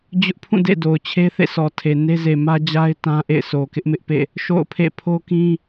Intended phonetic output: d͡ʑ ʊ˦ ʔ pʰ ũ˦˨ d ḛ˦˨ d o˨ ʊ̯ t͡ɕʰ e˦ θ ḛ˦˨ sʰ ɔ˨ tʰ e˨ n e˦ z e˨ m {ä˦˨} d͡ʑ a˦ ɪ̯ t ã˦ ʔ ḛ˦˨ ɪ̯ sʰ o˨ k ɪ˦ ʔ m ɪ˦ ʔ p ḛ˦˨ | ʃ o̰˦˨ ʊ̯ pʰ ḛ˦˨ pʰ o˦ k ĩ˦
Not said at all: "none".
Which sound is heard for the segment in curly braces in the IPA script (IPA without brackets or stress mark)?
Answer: ä˦